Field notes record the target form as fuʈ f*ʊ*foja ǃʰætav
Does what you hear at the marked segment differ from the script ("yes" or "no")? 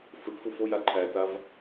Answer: yes